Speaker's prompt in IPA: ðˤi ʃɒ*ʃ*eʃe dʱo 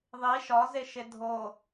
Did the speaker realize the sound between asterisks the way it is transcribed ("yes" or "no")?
no